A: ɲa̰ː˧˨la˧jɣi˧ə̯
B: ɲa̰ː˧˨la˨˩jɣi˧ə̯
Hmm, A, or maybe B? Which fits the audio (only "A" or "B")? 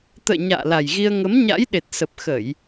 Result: B